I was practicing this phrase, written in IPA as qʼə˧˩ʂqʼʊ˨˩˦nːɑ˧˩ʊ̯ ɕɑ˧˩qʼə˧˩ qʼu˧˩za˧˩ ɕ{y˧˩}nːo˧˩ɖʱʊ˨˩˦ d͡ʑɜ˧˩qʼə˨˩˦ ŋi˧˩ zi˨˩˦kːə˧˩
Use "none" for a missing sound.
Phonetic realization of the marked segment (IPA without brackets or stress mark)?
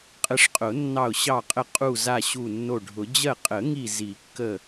u˧˩